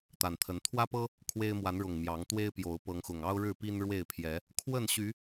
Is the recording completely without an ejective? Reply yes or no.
yes